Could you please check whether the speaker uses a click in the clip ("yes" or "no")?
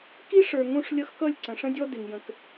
yes